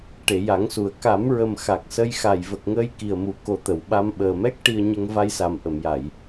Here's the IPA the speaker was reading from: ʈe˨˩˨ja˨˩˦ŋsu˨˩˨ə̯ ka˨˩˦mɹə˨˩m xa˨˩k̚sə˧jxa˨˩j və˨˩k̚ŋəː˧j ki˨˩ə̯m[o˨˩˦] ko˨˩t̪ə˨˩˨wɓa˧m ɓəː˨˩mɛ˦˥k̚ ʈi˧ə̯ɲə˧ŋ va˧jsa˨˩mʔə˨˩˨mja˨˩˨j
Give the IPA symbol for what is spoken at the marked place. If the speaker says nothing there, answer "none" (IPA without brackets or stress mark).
u˨˩˦